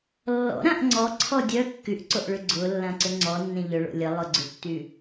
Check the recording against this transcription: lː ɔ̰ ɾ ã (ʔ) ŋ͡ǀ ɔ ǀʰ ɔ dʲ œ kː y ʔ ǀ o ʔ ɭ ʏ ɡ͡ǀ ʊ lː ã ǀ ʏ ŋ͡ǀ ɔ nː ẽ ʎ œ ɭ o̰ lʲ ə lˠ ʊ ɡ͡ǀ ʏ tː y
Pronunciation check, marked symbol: correct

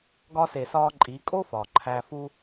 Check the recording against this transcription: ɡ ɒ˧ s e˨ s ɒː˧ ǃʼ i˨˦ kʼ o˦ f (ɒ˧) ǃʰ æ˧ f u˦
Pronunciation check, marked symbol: incorrect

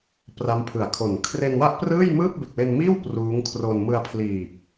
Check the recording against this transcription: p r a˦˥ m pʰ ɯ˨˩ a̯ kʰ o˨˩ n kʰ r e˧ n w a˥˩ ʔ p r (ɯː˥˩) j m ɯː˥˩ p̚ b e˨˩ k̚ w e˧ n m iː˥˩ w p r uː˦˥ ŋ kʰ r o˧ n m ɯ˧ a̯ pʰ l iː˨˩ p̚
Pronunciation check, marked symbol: correct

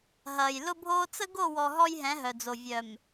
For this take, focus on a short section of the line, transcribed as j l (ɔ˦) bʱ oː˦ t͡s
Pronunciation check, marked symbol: incorrect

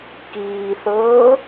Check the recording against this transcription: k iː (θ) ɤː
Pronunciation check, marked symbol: correct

